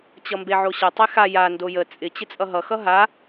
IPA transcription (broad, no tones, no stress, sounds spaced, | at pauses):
t͡ɕ ʌ m b e ʕ o ɕ ə tˤ e x a j a n d o j ə t͡sʼ ɪ t͡ɕ ɪ t͡sʼ ʌ ɦ ʌ x ʌ ɦ a